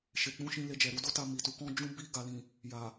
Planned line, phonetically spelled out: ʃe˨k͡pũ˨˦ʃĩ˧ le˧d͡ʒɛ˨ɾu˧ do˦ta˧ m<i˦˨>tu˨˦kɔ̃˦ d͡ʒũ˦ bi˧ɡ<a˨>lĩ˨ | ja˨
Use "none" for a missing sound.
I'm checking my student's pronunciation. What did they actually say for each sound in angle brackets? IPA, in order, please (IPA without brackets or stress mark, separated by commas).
i˨, a˨